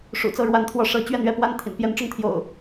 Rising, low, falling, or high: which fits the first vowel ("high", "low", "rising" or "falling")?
low